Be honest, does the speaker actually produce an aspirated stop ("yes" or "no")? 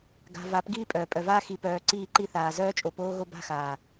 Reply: no